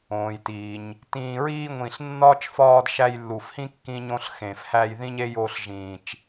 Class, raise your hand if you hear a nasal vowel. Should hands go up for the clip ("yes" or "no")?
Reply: yes